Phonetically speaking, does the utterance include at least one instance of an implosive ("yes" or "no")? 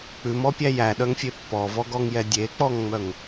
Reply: yes